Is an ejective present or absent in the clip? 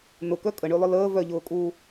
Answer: present